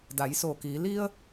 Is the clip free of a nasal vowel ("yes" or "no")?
yes